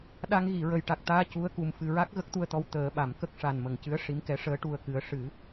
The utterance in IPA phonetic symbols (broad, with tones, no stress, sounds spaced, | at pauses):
ɗ a˧ ŋ ɣ i˨˩˨ ɹ ə˨˩ j ʈ a˨˩ k̚ t̪ aː˧ c u˧˥ ə̯ k u˨˩ m f ɨ˨˩ ɹ a˦˥ k̚ ɣ ə˦˥ k̚ t̪ u˧ ə̯ t̪ ɔ˧˥ w t̪ əː˨˩˦ ɓ a˨˩˨ m k ə˦˥ k̚ ʂ a˨˩ n m ə˨˩˨ ŋ c ɨ˧˥ ə̯ ʂ i˧˥ m k ɛ˧˥ ʂ əː˧˥ ʈ u˧ ə̯ k ɨ˧˥ ə̯ ʂ ɨ˨˩˦